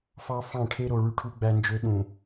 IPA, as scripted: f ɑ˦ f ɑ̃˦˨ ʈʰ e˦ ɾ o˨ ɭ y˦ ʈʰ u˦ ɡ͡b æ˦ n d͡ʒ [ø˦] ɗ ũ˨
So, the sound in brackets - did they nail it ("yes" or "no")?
yes